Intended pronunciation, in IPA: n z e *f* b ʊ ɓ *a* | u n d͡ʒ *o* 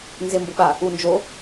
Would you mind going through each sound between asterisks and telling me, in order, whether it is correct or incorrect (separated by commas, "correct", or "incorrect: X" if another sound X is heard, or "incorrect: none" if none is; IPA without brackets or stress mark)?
incorrect: m, correct, correct